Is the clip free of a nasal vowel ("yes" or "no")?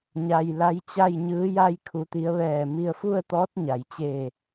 yes